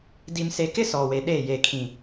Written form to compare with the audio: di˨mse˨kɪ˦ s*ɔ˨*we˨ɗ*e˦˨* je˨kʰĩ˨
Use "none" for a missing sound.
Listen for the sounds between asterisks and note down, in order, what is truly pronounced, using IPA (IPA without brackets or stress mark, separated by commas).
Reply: ɔ˨, e˦˨